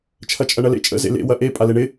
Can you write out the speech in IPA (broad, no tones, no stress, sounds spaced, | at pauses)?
t͡ʃʰ ɐ t͡ʃʼ ɐ ɳ ɐ l ḛ t͡ʃʼ ə̰ z ḛ l ḛ w ɐ ʔ e pʼ a l e ɳ ɪ